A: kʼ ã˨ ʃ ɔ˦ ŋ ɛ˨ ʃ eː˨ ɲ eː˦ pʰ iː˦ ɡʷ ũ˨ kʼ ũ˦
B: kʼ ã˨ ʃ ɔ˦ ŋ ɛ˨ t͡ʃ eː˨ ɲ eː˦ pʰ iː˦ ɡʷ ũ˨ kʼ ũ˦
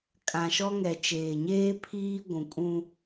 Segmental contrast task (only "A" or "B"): B